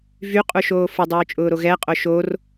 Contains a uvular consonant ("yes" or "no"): yes